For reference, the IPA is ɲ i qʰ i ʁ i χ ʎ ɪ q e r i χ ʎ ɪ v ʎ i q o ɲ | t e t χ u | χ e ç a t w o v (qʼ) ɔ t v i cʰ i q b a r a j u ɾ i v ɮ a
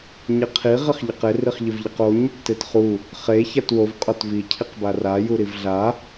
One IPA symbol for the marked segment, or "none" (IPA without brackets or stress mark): qʼ